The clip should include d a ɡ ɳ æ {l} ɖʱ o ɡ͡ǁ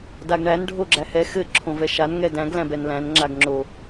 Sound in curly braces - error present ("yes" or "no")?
yes